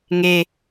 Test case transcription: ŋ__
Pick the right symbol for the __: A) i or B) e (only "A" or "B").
B